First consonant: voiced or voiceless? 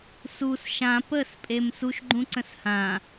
voiceless